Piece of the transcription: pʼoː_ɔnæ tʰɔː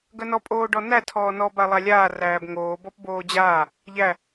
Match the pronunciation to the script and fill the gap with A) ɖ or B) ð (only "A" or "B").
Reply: A